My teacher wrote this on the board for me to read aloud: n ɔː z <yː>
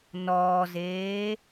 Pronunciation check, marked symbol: incorrect: eː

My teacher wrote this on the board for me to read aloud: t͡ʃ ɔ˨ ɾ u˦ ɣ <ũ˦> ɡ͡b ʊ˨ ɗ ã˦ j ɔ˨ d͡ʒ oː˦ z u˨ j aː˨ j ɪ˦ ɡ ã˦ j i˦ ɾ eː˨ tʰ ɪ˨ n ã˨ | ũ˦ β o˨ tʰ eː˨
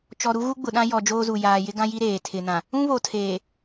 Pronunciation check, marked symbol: incorrect: u˦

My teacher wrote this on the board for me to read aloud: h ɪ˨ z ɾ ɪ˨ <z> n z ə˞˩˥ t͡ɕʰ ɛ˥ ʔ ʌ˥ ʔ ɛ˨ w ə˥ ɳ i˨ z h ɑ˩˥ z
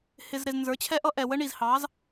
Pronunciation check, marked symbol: correct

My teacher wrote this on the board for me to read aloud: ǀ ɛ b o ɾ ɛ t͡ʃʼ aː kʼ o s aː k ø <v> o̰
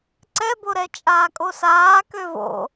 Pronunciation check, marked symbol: correct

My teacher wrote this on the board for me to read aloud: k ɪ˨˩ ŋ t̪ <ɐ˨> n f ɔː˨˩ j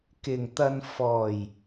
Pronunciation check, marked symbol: correct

